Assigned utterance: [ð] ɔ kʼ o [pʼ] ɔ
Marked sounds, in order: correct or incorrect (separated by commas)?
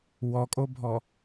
incorrect, incorrect